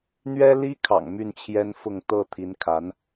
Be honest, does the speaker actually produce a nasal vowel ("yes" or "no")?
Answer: no